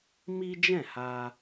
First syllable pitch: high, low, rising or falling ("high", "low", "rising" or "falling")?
high